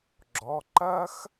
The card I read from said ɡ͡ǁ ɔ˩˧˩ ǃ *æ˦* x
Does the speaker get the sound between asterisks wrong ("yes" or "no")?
yes